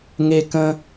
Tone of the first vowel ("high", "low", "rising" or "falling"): low